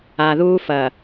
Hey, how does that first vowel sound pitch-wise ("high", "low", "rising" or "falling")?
low